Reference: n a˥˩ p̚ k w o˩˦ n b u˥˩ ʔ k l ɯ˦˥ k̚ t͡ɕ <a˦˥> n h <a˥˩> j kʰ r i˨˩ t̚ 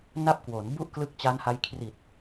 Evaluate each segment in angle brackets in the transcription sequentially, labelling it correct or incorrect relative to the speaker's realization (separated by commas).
correct, incorrect